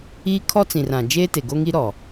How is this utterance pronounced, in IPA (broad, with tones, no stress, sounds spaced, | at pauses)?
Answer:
iː˦ kʰ ɔ˦ t͡s ĩ˨ r ã˨ d͡ʒ eː˦ t e˨ ɡ o˦ ŋ i˦ ɾ ɔ˨